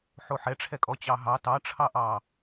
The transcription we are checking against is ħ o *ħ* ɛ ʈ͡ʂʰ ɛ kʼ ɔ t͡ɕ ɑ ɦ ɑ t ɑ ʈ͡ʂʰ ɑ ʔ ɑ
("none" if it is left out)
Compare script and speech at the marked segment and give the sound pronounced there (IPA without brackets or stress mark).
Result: ħ